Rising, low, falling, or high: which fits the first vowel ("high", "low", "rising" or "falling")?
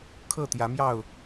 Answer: falling